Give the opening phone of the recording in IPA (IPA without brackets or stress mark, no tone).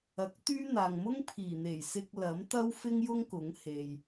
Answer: ɐ